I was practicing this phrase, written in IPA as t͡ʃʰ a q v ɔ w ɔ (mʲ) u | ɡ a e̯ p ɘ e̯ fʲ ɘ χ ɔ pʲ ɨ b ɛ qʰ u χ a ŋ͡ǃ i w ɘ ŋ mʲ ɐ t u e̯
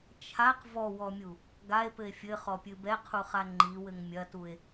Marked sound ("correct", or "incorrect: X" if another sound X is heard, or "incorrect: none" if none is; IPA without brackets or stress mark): correct